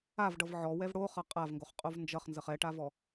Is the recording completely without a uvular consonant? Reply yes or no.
no